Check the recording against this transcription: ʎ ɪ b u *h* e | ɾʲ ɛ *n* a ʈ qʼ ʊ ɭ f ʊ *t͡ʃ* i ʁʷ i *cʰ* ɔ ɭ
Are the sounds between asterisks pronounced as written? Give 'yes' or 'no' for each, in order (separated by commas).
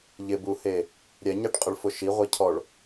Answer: yes, no, no, yes